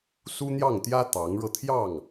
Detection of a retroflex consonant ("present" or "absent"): present